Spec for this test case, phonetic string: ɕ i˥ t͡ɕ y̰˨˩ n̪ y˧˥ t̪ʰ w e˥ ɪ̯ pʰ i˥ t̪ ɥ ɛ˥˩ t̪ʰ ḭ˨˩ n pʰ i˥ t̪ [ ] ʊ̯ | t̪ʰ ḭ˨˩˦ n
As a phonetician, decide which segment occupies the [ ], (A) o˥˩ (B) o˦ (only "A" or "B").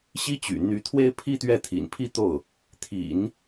A